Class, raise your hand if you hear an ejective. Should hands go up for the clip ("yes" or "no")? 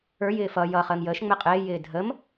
yes